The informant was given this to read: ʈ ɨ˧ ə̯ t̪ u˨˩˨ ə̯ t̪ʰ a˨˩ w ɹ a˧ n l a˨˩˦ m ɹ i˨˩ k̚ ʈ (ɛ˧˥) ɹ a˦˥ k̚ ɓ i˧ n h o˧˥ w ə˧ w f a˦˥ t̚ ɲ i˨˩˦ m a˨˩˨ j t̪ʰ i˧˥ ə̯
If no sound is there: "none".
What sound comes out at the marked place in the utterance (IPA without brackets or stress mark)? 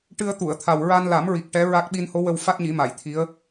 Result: ɛ˧˥